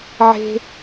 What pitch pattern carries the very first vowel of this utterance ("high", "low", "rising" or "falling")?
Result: high